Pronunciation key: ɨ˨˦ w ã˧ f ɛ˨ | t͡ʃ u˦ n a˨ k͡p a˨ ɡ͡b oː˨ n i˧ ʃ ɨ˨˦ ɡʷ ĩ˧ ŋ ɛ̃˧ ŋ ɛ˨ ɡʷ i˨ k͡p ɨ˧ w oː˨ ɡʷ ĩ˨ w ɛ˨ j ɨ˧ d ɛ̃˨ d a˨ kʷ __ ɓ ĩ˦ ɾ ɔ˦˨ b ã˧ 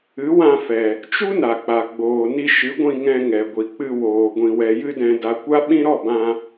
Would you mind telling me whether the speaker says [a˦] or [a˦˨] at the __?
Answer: a˦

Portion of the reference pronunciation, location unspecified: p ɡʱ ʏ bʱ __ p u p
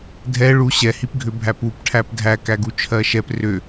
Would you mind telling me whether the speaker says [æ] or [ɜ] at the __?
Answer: æ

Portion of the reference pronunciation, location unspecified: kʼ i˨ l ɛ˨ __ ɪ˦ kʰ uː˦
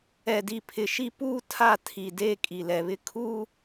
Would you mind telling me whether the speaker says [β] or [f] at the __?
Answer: β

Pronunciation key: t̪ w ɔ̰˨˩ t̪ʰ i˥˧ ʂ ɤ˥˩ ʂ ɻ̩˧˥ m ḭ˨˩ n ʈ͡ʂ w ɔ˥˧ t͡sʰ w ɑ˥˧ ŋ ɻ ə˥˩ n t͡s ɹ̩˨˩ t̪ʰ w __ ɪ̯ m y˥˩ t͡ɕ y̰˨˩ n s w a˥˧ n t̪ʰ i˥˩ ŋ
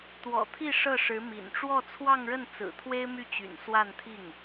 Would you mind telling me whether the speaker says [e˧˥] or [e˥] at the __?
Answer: e˥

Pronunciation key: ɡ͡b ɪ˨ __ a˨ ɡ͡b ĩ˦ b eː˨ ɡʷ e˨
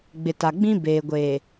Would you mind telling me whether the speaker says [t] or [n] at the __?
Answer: t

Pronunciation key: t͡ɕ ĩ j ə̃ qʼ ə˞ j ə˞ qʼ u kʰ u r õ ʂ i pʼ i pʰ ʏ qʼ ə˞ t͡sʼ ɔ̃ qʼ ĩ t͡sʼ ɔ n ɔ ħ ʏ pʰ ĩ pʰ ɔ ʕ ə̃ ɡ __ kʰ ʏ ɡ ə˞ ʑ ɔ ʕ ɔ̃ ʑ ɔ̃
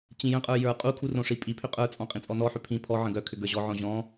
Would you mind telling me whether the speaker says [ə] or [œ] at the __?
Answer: œ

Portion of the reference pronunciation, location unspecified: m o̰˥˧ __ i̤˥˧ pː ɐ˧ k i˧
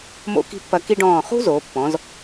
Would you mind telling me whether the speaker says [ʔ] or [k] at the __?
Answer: k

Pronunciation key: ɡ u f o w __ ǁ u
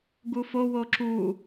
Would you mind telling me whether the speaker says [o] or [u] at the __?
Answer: o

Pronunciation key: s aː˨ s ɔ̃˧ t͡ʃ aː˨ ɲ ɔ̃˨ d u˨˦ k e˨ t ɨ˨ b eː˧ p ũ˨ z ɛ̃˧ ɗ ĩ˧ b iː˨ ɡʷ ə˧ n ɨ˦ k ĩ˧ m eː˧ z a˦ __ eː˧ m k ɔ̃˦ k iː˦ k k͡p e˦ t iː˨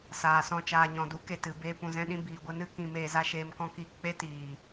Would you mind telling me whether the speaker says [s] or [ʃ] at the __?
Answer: ʃ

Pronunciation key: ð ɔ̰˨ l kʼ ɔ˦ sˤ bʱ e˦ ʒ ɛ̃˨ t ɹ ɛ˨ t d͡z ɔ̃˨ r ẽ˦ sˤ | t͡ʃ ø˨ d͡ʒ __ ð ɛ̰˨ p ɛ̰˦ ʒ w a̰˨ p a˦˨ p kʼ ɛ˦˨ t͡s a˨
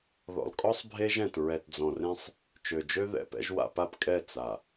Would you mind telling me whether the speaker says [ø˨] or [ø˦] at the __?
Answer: ø˦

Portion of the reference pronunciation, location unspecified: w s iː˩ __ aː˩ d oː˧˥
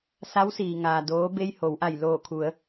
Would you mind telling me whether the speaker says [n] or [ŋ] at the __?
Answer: ŋ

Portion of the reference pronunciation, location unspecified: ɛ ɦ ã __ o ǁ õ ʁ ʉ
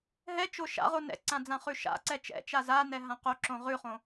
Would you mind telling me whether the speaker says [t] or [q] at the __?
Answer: q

